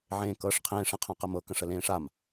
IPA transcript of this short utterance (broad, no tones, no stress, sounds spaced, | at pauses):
ʕ ẽː k ɤː ʂ qʰ ẽː ʂ ɐ̃ qʰ ã q ɐ m ɤ k ɐ̃ ʂ ə l ẽː ʂ a m